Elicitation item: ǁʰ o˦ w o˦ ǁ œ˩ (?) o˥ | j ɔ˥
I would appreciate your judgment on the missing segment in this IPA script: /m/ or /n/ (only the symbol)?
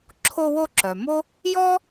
m